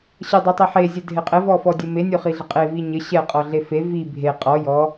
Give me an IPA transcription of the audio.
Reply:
ɕ ə dˤ o tˤ e ħ e zʲ ɛ dʱ e qʼ ɘ v ɔ f ɔ dʲ ɘ m e nʲ o χ i ɮ ə qʼ e v i ɲ ɘ ɕ ɛ qʼ ɔ ɮ e f e v i bʱ e qʼ ɔ j ɔ

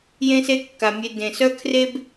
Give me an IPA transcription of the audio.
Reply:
j ẽ˥ s e˥ kː a˩ mʲ e˧ d ẽ˩ s œ˥ kʰ r e˥ b

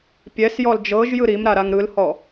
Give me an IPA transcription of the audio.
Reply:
pʲ ɛ s j ɔ l d͡ʒ ɤ ʒ j ɯ ɾ i m ɾ a ɾ a ŋ ɾ ɯ l h ɔ

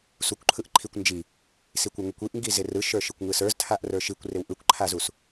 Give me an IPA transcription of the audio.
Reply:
s u kʷ ǃʰ ɯ ʔ ǃʰ i kʷ n d͡ʒ i | s i kʷ ə˞ ŋ u kʷ i ʔ ŋ ɡ i z ɪ r ɯ ʃ ə˞ ʃ ɯ kʷ ŋ ɯ s ə˞ z tʰ a ʔ r ə˞ ʃ i kʷ r ɪ w ʔ ɯ kʷ ǃʰ a z u s

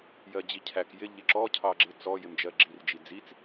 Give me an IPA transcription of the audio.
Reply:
j ɜ d͡ʑ i cʰ æ k j ɪ ʎ ɪ ǁ ɔ cʰ ɑ ɡ͡ǁ ɪ t͡s ɔ j ɪ m d͡ʒ ɜ ɡ͡ǁ i r d͡ʒ i d͡z i t͡s

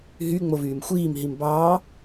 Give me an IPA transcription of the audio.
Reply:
ɦ y ŋ͡m o v yː m xʷ iː m ɦ i m b ɑː

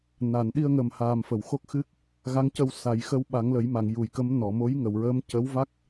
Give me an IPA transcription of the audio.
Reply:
n a˨˩˨ n ɗ i˧ ə̯ ŋ ə˨˩ m h aː˨˩ m f ə˨˩˨ w x o˦˥ k̚ x ɨ˦˥ k̚ | ɣ a˧˥ ŋ c ə˧ w s a˨˩˦ j x ə˧˥ w ɓ a˨˩˦ ŋ l ə˨˩˦ j m a˨˩˨ ŋ j u˨˩˨ j k ə˧˥ m n ɔ˨˩˨ m o˧˥ j ŋ ə˨˩˨ w ɹ əː˧˥ m c ə˧˥ w v a˦˥ k̚

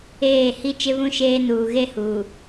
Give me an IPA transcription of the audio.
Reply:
eː˦˨ h i˦ t͡ʃ ɪ˦ β ũ˦ ʃ eː˦ n uː˨ ɣ e˦ h uː˨

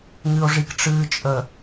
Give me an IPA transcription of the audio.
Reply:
ŋ ɨ o̯ ʐ i k ʈ͡ʂ ɨː t͡ʃʼ ə

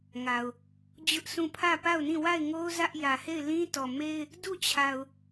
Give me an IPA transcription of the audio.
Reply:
ŋ a˨ ʊ̯ | d͡ʑ ʊ˦ ʔ sʰ ũ˦˨ pʰ ä˦˨ p a˦˨ ʊ̯ n ĩ˦˨ w a˦˨ ɪ̯ ŋ o˦ ʊ̯ z ä˦ ʔ j ä˨ h e˦˨ ɪ̯ l ĩ˦ t ɔ˨ m e˦ ɪ̯ | d u˦˨ t͡ɕʰ a˨ ʊ̯

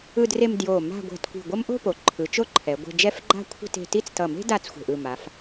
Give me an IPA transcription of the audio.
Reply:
ɯ˧ d r e˧ m d j o˧˩ m a̤˥˧ ɡʷ ɛ̤˧ t kʷ i̤˧˩ ɡʷ ʌ˥ m ʔ o̤˥˧ p o˩˧ ǃʰ ɯ˩˧ t͡ʃ o˥˧ ǃʰ ɛ˩˧ ɡʷ e̤˧ d͡ʒ ɛ˥˧ f ɡ͡ǃ a̤˥˧ kʷʰ e̤˥˧ t e̤˧ t i˥˧ t͡s t ʌ˧˩ m e̤˥ d a˥˧ t͡s xʷ e̤˧˩ ʔ ɯ˧˩ m a˩˧ f

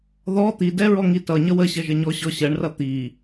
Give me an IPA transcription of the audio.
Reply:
ð ɔ t̪ i d ɛ ɹ ɔ ŋ i t ʌ ɲ ʌ w ə ɕ ʌ ʒ ə ɲ ɔ ɕ ɔ ɕ ɜ ɳ r ʌ t̪ i

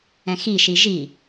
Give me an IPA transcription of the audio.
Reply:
ɛ̃ x i ʃ i ʒ i

